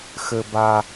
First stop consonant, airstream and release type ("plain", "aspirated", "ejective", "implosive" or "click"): plain